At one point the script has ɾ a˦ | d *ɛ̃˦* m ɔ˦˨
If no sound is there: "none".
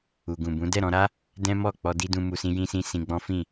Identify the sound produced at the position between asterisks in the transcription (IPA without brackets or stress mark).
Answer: ɛ̃˦